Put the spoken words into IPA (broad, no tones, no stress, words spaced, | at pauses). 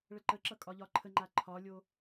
ɭəǃəǁʌ kʼɒʎɒǃʰəŋ͡ǃa ǃʰɒlʲo